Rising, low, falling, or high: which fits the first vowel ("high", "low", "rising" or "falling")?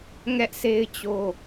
high